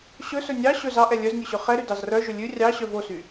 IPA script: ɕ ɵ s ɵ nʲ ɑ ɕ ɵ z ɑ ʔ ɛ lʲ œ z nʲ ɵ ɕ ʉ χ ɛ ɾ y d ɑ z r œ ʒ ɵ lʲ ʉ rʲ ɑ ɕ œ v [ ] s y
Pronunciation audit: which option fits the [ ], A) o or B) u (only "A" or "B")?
A